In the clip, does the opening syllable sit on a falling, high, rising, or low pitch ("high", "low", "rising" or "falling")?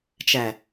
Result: low